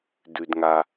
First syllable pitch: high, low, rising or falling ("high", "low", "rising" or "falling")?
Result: low